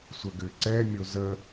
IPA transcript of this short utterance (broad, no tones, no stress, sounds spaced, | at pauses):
sʷ ə ɡ ʏ ǀ ɛ mʲ o z ə